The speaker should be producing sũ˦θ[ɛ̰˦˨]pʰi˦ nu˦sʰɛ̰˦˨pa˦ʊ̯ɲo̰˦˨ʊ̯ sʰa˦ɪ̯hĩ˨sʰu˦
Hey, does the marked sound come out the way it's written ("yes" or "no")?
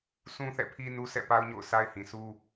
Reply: yes